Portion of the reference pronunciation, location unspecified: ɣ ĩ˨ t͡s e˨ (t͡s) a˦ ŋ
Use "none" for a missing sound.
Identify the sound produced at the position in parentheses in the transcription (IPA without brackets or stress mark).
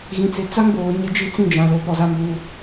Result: t͡s